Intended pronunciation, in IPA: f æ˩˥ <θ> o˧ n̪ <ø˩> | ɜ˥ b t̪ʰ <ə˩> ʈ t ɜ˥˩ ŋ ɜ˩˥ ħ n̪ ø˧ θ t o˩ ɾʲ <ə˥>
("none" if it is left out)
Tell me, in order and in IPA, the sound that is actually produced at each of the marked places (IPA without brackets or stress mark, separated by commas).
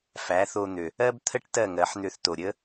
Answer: θ, ø˩, ə˥, ə˥